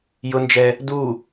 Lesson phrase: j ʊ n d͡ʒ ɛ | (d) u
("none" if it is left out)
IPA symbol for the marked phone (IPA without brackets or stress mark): d